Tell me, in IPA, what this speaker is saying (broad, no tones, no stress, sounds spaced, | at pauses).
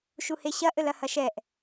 ʃ u h e ɕ ɐ ʔ ɘ l ɐ h ɐ ʃ ɛ ʔ